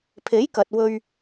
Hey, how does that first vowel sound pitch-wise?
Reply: rising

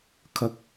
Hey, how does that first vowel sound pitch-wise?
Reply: rising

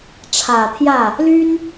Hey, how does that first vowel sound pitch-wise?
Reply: low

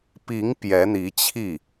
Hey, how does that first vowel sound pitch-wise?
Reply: rising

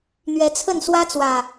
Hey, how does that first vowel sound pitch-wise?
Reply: rising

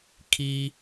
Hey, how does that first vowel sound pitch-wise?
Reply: high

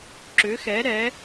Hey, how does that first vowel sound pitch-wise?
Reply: rising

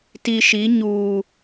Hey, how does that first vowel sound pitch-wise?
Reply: low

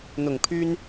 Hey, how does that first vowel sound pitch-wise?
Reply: low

